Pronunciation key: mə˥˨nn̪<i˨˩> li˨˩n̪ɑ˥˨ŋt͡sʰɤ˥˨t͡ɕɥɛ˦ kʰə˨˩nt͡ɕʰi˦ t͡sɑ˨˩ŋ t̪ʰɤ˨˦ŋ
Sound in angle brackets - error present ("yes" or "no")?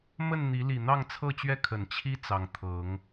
yes